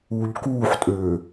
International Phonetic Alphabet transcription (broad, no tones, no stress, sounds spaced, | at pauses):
uː ʎ k uː ħ tʼ øː